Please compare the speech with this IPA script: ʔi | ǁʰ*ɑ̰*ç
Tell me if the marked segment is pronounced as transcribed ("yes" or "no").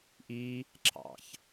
yes